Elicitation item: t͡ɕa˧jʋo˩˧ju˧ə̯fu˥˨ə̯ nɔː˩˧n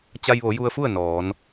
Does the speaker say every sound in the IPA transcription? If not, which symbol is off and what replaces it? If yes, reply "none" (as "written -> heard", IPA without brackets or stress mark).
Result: none